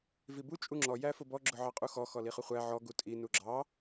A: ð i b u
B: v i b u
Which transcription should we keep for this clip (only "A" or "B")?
B